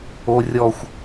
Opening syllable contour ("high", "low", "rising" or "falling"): high